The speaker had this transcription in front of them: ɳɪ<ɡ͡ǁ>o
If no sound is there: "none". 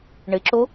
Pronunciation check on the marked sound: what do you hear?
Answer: ǁ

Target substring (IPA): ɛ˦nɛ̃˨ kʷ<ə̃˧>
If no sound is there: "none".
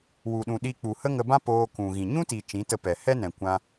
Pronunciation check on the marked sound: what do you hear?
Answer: ã˧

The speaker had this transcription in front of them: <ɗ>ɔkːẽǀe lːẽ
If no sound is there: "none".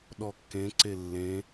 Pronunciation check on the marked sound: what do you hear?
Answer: ɗ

